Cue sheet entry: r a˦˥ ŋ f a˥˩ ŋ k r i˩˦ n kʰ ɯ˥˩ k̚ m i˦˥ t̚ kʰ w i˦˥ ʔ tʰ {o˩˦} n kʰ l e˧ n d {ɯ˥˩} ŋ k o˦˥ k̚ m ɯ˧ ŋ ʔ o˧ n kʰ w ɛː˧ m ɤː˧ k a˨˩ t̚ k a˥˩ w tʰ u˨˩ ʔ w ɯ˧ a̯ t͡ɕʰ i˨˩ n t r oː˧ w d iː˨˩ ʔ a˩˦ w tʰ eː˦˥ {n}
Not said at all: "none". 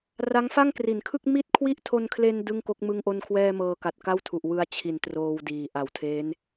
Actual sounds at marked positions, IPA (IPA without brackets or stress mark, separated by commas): o˧, ɯ˥˩, n